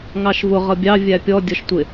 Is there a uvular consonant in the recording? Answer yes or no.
yes